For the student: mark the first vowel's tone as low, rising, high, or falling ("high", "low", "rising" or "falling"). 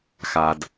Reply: low